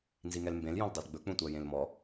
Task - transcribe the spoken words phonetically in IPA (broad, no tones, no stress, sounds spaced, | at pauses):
n z i ŋ ɛ l m b ẽ l j õ l dˤ ʉ l ɡ͡b ɵ k͡p ũ tʷ æ j ẽ l m ɔ